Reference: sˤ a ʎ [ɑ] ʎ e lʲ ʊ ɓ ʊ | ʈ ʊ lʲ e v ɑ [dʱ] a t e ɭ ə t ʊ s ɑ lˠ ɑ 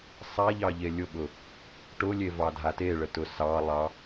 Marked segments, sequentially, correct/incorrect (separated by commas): correct, correct